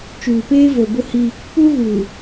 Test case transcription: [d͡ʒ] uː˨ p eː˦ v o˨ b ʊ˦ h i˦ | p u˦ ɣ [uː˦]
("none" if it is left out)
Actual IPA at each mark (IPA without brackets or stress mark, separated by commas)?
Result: t͡ʃ, uː˨